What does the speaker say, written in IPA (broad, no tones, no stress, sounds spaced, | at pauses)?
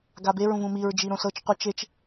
ɡ a b e ɹ ũ v ũ m i ɹ d͡ʒ i ɾ õ s ɤ t͡ʃ qʷ ɯ t͡ʃ e t͡ʃ